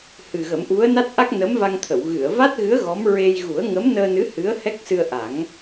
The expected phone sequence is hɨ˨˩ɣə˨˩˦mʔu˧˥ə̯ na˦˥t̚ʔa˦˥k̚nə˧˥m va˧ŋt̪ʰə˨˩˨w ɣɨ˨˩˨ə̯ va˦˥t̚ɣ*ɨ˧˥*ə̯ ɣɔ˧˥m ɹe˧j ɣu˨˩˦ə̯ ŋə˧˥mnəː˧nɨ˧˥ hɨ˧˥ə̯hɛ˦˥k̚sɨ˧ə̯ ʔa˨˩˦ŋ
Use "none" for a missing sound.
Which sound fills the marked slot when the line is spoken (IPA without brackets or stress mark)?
ɨ˧˥